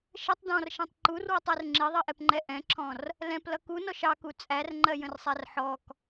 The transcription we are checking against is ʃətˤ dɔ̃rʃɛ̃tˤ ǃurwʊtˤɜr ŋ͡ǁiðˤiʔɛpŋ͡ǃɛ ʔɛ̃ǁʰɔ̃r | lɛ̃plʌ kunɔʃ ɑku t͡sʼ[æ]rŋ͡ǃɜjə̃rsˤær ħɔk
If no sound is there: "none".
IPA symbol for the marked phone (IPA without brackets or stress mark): æ